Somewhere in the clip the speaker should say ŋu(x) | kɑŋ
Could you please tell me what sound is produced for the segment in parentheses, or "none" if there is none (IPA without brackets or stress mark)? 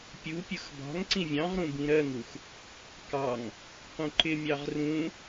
x